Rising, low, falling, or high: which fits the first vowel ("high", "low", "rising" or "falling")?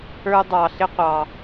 high